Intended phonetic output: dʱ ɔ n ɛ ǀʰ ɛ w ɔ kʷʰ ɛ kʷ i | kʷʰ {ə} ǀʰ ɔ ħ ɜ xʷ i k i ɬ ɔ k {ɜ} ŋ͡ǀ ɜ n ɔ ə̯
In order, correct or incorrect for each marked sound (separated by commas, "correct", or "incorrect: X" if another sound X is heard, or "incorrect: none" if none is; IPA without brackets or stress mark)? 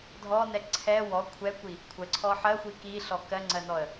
correct, correct